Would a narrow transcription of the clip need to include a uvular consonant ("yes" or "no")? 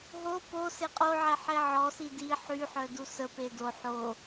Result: yes